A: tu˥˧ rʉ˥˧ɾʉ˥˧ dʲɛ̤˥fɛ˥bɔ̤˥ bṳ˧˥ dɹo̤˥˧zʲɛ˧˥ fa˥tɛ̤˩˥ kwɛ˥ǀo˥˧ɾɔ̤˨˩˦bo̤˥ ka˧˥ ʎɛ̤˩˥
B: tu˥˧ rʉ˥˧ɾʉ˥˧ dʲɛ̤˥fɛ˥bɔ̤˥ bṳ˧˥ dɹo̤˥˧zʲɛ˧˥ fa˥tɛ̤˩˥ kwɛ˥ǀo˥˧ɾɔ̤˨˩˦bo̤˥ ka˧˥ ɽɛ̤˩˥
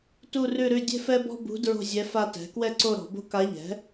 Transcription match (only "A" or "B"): A